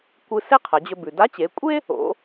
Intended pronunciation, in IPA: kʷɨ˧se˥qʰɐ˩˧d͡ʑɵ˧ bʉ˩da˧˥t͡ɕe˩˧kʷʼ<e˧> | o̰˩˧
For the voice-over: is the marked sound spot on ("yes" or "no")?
no